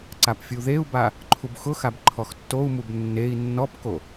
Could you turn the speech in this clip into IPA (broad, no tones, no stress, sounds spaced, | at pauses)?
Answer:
ǀ a p fʲ u ð e u̯ b a | ǃʰ u b x ʊ x a b ǃʰ ɔ x tː o u̯ m u b nː e i̯ nː ɔ p k o